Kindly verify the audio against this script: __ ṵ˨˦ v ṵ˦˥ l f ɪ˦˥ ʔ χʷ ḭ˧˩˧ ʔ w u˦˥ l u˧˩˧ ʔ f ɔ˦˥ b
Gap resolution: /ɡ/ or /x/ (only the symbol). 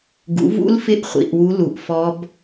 ɡ